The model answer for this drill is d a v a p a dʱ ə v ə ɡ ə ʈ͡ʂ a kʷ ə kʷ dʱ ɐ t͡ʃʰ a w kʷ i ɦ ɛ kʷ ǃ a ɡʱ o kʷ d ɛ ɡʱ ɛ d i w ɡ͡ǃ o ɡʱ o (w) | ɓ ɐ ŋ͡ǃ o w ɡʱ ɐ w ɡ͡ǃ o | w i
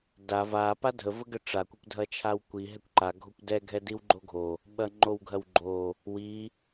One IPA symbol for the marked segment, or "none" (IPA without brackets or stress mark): none